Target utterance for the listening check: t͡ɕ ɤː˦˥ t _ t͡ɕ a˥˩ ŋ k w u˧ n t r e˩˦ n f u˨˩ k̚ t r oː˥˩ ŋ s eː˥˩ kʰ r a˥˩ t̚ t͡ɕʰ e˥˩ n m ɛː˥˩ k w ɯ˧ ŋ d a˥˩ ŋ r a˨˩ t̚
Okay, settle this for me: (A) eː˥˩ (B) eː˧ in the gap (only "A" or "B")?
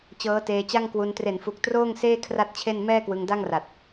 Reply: B